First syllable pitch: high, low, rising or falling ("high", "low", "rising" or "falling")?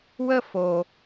high